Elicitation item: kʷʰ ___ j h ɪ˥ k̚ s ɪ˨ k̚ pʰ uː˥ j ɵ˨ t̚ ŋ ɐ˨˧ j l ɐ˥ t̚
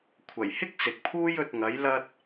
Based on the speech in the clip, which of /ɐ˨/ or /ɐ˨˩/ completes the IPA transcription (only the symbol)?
ɐ˨˩